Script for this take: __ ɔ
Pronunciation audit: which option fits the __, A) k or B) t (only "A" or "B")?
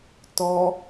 B